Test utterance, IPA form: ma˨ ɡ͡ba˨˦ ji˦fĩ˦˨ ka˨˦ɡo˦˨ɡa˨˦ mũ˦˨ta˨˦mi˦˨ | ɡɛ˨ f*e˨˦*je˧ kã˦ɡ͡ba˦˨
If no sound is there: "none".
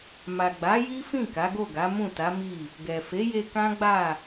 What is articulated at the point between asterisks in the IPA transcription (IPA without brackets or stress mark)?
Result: e˨˦